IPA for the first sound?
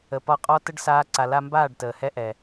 ə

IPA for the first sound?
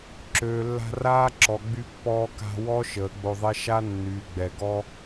ǁ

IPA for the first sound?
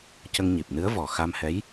c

